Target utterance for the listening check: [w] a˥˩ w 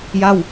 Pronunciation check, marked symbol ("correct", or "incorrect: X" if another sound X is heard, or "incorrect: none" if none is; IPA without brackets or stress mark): incorrect: j